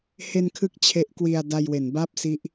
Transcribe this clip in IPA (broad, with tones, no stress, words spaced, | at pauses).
he˧nkʰɯ˦˥k̚ t͡ɕʰe˦˥ʔkwi˧a̯ da˧jwe˩˦nba˥˩p̚ si˦˥ʔ